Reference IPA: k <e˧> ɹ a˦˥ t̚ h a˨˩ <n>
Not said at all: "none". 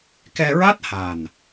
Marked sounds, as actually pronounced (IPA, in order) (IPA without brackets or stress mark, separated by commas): ɛ˧, n